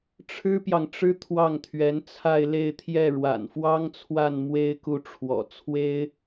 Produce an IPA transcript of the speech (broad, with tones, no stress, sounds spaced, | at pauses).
ʈ͡ʂʰ ɻ̩˥ p j ɑ˨ ŋ ʈ͡ʂ ɻ̩˥ t̪ʰ w ɑ˥˩ ŋ t̪ʰ ɥ ɛ˧˥ n t͡sʰ a˥˧ ɪ̯ l e˥˧ ɪ̯ t̪ʰ j ɛ˥˩ ɻ w a̰˨˩ n f w ɑ˥ ŋ t͡sʰ w a˥˩ n m w e˥ ɪ̯ k u˥˩ ʈ͡ʂʰ w ɔ̰˨˩ t͡sʰ w e˥ ɪ̯